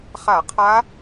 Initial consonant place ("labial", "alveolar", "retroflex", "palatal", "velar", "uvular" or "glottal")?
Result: uvular